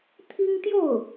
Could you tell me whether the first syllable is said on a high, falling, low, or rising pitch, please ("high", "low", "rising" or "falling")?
high